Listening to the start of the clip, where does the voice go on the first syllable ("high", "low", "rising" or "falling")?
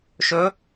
rising